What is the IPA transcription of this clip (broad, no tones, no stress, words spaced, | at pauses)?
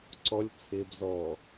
ǀɔlʲ t͡sʰɪːb zɔː